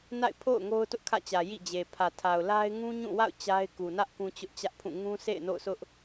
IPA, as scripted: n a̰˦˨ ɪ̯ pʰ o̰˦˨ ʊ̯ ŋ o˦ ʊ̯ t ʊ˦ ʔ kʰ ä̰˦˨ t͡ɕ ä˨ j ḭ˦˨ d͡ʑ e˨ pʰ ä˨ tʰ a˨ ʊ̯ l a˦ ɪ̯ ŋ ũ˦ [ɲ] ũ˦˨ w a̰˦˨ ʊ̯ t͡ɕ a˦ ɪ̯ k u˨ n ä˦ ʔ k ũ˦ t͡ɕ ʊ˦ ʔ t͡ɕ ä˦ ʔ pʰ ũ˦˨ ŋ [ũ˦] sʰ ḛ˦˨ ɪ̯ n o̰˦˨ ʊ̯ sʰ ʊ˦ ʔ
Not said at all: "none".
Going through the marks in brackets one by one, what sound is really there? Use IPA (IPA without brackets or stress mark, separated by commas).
ɲ, ũ˦